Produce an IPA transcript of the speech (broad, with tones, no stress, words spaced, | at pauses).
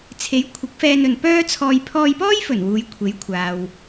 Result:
t͡sʰe˨˥jkʷʰɪ˨˥k̚fɛː˧nɵ˨n pœː˥t͡sʰɔː˧j pʰɔː˧jpɔː˥jfɵ˨˩n wuː˨˧jkʷʰe˨˥jkʷʰaː˨w